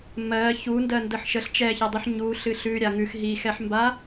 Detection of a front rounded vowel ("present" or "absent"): absent